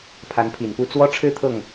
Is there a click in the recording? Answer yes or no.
no